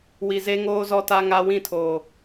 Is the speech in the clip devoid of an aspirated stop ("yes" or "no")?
no